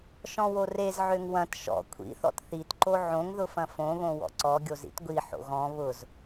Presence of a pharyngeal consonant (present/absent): present